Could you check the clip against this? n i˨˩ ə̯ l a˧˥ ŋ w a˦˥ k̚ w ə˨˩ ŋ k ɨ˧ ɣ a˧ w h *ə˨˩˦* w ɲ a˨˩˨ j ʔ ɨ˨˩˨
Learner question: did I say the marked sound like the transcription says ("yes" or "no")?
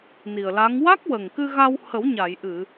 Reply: yes